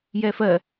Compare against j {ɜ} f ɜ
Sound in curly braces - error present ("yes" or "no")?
yes